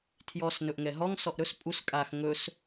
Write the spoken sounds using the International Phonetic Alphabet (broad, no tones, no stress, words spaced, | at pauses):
tʰjɔs nɵʔŋɛɦɔŋ sɔʔɾɵs pʼus kʼax ŋɵs